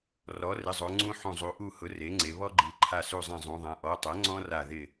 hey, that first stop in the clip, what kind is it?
click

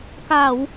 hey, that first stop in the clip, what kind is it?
plain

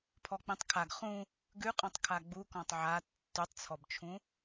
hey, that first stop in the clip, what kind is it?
aspirated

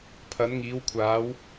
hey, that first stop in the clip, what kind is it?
aspirated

